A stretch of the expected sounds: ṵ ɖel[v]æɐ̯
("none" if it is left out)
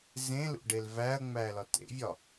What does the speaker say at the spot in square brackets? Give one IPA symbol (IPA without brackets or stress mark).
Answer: v